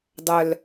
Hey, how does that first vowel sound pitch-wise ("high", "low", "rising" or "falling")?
low